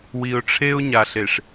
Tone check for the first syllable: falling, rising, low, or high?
low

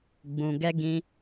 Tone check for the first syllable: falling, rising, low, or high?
low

